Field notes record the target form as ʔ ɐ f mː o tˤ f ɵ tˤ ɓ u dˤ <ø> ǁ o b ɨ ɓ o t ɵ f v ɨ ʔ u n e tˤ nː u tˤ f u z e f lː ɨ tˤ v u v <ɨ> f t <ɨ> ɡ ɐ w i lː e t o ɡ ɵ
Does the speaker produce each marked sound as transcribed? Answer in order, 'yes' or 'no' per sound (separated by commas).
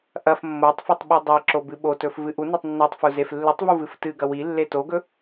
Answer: no, yes, yes